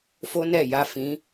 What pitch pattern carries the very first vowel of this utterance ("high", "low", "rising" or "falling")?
high